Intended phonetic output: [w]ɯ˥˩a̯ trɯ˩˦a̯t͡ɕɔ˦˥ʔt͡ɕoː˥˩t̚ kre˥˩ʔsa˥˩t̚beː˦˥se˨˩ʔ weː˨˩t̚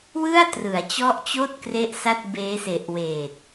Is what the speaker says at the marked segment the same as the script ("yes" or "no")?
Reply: yes